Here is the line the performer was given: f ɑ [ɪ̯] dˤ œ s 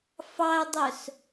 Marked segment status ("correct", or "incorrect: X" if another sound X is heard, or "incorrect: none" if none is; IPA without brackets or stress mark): incorrect: ə̯